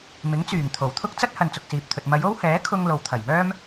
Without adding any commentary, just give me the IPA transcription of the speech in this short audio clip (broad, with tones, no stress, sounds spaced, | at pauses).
m ɪ˨˥ ŋ t͡s yː˨˩ ŋ t̪ʰ o˨˩ w t̪ʰ ʊ˥ k̚ t͡s ɐ˥ t̚ h ɐ˨ n t͡s ʊ˨ k̚ s iː˨ p̚ t̪ʰ ɵ˨ t̚ m ɐ˨˧ j o˥ w h ɛː˨˥ kʰ ʊ˥ ŋ l o˨ w t̪ʰ ɐ˨˩ j m œː˥ m